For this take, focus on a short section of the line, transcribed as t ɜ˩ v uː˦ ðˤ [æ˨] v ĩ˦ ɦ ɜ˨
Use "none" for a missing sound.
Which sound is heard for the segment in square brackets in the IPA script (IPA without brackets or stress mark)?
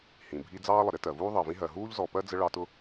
ɜ˨